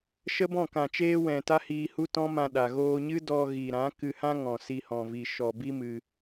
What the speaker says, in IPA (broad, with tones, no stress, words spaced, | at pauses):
ʃə˦bɔ̃˦˨ kã˨t͡ʃeː˧wɛ̃˨ta˧ hiː˧ hu˦tɔ̃˦mã˧ ɗa˨ɣoː˧ɲɨ˦dɔ˧ ɣiː˨ɾã˨˦ kɨ˧hã˦ ŋɔ̃˨ si˧hɔ̃˨vi˨ ʃɔ˨bi˦mɨ˧